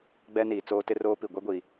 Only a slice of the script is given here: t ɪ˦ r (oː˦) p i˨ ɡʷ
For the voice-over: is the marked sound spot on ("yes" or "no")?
yes